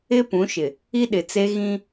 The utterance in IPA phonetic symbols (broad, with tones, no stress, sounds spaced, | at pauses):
ɪ˦ p ũ˨˦ ʃ ɪ˨ | i˦ ɗ ɪ˨ t͡s e˦ ɣ ĩ˦